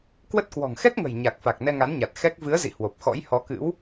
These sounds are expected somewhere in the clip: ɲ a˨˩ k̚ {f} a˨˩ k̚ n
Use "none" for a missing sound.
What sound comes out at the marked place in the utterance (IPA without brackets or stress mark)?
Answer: f